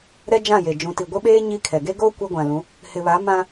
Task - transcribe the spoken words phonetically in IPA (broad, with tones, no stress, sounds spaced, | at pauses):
ɾ ɛ˦ d͡ʒ ã˦˨ j e˨ d͡ʒ ũ˨ t i˨ ɡʷ ɪ˦ ɓ eː˦ ɲ i˦ kʰ ɛ˨ ɡ e˦ ɡ oː˦ kʷ e˦ ɡʷ ã˨ l ũ˨˦ | h ɪ˨ β a˨˦ m ã˦